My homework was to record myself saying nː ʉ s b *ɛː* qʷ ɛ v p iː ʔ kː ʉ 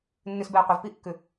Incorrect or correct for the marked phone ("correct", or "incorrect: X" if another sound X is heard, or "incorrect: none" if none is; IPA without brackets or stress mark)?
correct